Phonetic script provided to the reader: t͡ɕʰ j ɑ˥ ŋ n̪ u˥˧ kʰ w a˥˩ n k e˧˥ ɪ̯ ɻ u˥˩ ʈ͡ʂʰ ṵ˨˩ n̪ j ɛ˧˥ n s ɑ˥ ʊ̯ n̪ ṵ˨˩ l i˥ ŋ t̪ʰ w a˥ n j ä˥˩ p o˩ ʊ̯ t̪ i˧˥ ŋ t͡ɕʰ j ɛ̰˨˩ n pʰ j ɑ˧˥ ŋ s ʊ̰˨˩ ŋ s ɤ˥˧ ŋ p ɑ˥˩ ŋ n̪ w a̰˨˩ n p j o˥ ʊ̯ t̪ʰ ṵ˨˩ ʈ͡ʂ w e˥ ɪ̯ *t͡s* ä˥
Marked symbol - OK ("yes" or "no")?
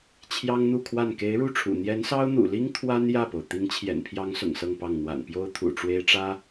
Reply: no